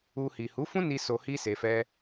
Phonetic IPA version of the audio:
u˧ hi˨hu˨˦fũ˦ni˧ so˧hi˦ se˧fɛ˦

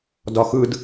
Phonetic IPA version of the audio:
dɒxɯd

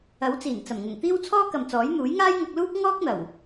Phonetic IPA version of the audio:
ɐ˨˥wt͡siː˨˩n t͡sɐ˨˩mŋʊ˨˩ŋt̪iː˥w t͡sʰɔː˥kɐ˨mt͡sɔː˨˥j n̪uː˨˥jŋaː˥jŋɐ˧k̚luː˥k̚ ŋɔː˥k̚n̪ɐ˨˩w

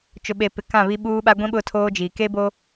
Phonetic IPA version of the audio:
t͡ʃʊ˨ɓe˨pɪ˨ kã˦˨βi˦ɓuː˦ɓa˦ ɡʷĩ˦ ɓʊ˦tʰoː˦d͡ʒiː˨ ke˦bo˦

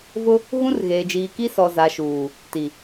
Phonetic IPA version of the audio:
vʊ˦ | ɣũ˦rɣeː˨ d͡ʒiː˨ki˦ sɔ˨za˨ʃuː˨ | ti˨

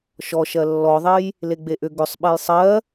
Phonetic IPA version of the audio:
ʃɔʃɜ lːɔðˤej | leɡ͡beʔʏ ɡʏsˤ ɓɛjsˤɜ

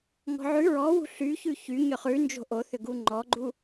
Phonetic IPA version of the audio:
ŋɔ̤ʕʉ ɹɔwṳ ɬy çʉçy ɲʏχʉ nd͡ʒo̤ʔoθʏɡu ŋ͡ǃɔɡ͡ǃu

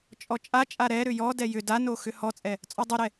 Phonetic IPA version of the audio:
t͡ʃʼɔt͡ʃʼat͡ʃʼa ɾɛɾʏ jɔdɛ jʏ dano xʏhɔt͡sʼɛ | t͡sʼɔdˤʏɾɛ

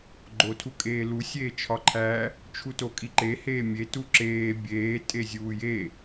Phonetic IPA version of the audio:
ɡ͡ǃotʰukʼeːlu sʲeːt͡ʃʰɒǃʰæ | t͡ʃʰutokʼiǃe heːmʲe tuǁeː bʲeː tʼezʲuːje

